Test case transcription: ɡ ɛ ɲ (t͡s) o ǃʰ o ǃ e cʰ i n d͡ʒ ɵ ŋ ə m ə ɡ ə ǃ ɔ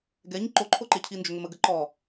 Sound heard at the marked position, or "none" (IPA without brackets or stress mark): ǃ